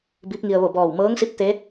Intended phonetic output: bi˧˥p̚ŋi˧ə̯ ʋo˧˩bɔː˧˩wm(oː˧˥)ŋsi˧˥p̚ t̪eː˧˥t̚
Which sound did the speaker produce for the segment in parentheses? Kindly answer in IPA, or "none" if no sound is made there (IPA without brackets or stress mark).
ɤː˧˥